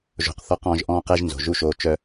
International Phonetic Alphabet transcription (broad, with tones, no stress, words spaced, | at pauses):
ʒo̤˨qθɔ˧q ɔ̃ː˧ʒʔɔ̃ː˦qɛ˦ʒnzo̤˨ ʒu˦ʃoː˧t͡ʃœ˦